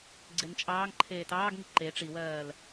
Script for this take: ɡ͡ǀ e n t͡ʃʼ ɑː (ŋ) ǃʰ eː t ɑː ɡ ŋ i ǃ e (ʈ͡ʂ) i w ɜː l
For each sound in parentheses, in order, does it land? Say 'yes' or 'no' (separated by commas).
yes, yes